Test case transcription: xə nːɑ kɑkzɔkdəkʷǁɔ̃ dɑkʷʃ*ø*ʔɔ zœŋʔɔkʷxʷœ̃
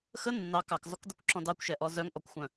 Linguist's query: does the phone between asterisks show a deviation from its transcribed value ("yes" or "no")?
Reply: yes